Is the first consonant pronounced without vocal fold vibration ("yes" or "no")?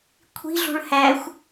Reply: yes